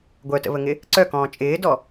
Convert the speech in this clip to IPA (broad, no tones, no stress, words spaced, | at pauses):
ɡʷœtə̰βəŋɪ | ǀœkɔ̃ː t͡ʃʼɪːdɔ